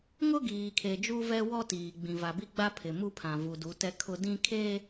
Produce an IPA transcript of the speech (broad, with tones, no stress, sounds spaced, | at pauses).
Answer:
ŋ ʊ˦ ɡ iː˨ kʰ e˨ d͡ʒ u˦ v ɛ˦ w ɔ˦ t iː˨ ɡ͡b ĩ˨ v a˨ b i˦ ɡ͡b a˦ pʰ ɪ˨ m u˦ pʰ ã˨ v u˨ d u˨˦ t ɛ˦ kʰ ʊ˦ d ĩ˦ kʰ eː˦